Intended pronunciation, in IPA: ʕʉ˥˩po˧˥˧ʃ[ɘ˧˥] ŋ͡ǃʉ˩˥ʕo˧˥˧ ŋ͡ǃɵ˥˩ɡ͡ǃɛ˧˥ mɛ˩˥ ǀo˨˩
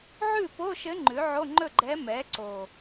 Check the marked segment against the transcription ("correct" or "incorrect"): correct